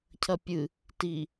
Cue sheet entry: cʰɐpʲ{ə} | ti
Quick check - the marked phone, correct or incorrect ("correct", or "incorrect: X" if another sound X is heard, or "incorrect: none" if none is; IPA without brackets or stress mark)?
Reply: incorrect: ɨ